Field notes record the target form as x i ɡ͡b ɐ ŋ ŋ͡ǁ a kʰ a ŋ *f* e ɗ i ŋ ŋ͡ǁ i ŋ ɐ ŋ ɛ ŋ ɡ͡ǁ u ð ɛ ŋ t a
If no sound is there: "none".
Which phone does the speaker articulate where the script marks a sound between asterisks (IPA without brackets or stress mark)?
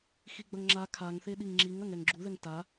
θ